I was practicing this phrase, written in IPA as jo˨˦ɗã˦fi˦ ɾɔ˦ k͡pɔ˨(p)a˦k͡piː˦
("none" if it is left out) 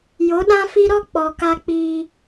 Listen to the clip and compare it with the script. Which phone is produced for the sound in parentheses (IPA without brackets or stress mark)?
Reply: k